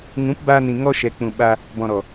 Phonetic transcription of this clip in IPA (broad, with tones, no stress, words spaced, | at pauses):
ŋũ˨˦pbaː˧nĩ˨ ŋɔ˧ʃɛ˨k͡pũ˨ ɓa˧ | bɔ̃˨ɾɔ˨